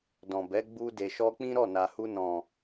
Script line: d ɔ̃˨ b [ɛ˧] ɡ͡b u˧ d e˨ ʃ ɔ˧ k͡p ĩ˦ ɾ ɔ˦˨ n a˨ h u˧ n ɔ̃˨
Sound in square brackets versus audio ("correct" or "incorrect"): incorrect